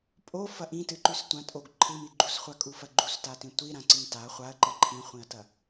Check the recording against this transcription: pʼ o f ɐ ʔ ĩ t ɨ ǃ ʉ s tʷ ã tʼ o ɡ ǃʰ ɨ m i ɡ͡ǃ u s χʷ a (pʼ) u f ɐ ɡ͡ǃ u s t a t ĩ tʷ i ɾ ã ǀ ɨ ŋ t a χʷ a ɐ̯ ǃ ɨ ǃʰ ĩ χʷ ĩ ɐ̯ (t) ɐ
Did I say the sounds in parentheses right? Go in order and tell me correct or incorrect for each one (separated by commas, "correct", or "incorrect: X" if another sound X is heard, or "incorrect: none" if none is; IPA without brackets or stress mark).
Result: incorrect: kʼ, correct